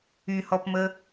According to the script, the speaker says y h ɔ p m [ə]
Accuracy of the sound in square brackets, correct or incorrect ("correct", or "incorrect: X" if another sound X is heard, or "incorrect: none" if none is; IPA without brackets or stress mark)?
correct